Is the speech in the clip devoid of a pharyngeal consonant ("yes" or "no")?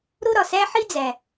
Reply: no